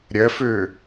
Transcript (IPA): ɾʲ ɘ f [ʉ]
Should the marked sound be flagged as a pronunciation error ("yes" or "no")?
no